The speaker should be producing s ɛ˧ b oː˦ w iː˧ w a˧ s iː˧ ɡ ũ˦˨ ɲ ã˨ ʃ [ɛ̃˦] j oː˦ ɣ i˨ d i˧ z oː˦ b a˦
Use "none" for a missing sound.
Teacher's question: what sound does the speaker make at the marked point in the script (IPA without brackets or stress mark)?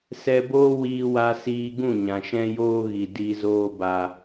ɛ̃˦